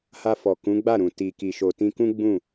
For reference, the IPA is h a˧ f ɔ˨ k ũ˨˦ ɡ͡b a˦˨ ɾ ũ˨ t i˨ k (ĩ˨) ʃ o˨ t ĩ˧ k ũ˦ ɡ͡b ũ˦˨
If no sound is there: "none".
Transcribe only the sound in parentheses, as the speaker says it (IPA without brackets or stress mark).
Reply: i˨